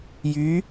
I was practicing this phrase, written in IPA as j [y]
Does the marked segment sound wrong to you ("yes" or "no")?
no